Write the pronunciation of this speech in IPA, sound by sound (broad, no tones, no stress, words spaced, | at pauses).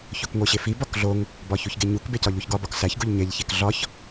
çokŋʷeɕefi bɒkɮoŋ | bɒçuçɡeɲuk becɒʎuçɡɒ bɒksæç ɡuʎɲeʎ çekɮɒç